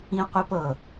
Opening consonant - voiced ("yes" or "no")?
no